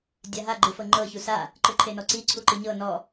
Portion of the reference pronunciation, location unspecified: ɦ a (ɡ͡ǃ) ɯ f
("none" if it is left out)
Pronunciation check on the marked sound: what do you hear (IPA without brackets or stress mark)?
ɡ͡ǃ